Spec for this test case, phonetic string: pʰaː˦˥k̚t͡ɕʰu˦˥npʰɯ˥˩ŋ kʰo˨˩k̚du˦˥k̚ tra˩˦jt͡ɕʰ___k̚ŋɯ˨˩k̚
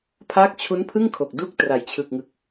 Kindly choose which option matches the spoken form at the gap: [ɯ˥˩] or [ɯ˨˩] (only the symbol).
ɯ˨˩